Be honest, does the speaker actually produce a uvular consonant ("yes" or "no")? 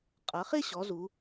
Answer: yes